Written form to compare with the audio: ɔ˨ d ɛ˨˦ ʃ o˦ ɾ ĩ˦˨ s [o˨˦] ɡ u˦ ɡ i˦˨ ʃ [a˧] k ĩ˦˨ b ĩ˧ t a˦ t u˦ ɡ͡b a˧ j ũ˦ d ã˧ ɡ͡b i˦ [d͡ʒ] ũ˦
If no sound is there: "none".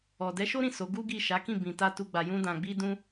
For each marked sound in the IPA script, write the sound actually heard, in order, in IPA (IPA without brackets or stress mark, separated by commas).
o˨˦, a˨˦, d